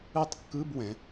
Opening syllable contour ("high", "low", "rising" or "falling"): falling